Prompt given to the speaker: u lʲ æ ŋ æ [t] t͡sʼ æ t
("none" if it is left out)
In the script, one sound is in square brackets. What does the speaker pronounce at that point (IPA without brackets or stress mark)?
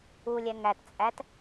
t